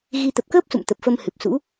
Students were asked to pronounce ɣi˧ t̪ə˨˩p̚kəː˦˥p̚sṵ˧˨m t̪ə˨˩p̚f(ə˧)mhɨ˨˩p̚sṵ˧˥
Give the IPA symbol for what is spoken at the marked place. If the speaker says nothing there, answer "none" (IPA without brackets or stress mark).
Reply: ə˧